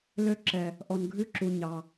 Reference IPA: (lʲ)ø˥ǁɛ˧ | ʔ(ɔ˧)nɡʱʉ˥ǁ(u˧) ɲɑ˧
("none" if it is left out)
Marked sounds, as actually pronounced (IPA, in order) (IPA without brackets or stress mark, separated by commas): l, ɔ˧, u˧